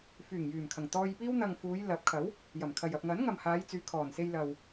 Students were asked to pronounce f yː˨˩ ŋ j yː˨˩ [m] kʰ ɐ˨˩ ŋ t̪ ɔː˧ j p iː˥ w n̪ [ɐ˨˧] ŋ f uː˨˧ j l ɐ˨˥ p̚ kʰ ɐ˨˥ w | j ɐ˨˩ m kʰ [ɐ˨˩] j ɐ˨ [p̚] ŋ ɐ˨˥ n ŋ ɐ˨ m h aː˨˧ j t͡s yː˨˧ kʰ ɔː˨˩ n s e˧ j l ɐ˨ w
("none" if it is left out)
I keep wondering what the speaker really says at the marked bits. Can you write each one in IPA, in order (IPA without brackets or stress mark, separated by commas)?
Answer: m, ɐ˨, ɐ˨, p̚